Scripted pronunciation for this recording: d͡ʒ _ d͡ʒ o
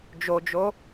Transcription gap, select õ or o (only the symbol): o